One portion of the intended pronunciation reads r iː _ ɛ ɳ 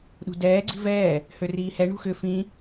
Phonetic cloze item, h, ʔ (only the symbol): h